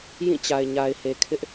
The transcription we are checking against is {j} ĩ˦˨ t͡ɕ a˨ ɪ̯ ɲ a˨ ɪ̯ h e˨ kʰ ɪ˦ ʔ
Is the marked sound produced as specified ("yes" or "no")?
yes